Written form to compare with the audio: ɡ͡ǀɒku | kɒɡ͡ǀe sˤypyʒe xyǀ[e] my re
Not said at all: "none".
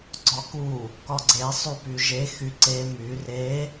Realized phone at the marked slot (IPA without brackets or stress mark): e